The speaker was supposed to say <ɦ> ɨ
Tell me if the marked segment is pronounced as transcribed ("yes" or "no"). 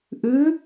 no